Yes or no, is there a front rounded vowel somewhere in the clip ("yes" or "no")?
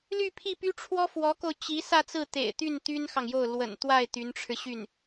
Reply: yes